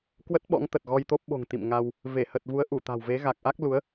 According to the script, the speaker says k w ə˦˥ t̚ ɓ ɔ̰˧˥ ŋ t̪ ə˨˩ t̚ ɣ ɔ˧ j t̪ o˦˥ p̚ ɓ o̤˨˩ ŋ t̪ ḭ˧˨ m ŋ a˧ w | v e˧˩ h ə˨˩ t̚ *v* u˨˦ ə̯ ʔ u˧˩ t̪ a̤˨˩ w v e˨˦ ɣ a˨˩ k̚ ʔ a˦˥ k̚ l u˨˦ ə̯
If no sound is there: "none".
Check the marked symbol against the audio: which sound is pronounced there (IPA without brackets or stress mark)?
v